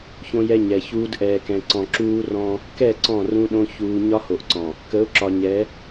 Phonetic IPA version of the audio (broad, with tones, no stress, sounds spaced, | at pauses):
ç õ˦ j ɛ˦ ɲ ɛ˨ ç uː˦ d ʔ ɛː˨ k ɛ̃˨ ǀ ɔ̃˨ ǁ uː˦ r ɔ̃˦ | k ɛ˦˨ ǀ ɔ̃˦˨ r ũ˦ ɗ õ˦ ç uː˨ ɲ ɒ˦ h o˨ ʔ ǀ ɔ̃˨ | k ə˨˦ ʊ̯ ǁ ɒ˨ ɲ ɛ˨˦